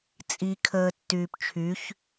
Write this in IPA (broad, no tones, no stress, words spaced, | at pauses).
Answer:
t͡sʼi kʰəːtːyːpt͡ʃʰyç